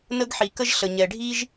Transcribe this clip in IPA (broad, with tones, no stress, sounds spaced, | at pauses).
n ə˥ ɡ ħ i˩ k ə˥ ʒ ɬ ə˩ ɲ ɛ˩ ɖʱ i˥ ʒ